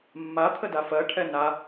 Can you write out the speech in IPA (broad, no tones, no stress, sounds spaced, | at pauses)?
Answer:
mː a t̪ʰ ə d a f ɜ ʈʰ ɛ n a